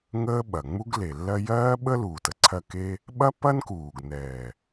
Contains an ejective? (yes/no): no